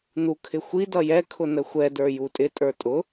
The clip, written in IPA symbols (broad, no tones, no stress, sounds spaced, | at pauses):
n u kʰ ɪ xʷ i d ʌ j ɛ kʰ ʊ n ə xʷ ɛ d ə˞ j u tʼ ɪ tʼ ə˞ tʼ ʊ